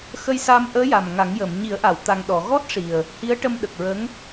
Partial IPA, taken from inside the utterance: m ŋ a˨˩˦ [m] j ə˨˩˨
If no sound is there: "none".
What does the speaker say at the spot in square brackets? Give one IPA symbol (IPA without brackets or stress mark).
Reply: ŋ